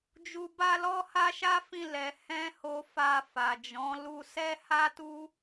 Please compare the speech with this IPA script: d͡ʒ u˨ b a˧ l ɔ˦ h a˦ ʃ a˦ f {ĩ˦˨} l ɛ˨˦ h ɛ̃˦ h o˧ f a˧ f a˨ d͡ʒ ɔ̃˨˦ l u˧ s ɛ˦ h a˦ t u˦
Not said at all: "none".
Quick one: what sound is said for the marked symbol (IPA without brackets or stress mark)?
ĩ˦˨